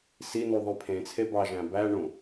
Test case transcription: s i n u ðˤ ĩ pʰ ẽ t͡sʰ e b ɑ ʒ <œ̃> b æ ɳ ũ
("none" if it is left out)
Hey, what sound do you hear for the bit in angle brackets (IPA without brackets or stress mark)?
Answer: æ̃